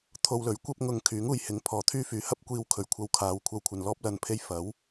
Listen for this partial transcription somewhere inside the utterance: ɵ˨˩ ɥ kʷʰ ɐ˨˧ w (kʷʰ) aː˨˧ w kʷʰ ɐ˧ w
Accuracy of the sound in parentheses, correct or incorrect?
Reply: incorrect